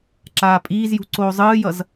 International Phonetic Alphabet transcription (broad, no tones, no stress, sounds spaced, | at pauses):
ǁ aː pʼ iː z j ṳ ǀ oː zˤ ɯː j ʌ z